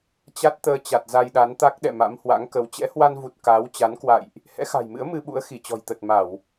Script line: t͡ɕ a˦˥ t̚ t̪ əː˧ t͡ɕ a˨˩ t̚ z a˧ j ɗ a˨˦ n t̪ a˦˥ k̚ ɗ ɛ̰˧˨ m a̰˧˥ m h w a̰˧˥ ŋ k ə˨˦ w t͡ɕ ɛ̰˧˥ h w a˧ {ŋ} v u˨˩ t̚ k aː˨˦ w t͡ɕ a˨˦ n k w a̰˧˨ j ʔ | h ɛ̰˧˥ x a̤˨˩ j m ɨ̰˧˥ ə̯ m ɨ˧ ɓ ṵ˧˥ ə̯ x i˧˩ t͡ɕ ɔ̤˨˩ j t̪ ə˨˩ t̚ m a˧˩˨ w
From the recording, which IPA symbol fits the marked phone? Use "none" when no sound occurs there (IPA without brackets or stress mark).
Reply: n